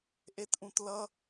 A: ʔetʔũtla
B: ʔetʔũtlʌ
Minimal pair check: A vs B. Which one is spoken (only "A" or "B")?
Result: B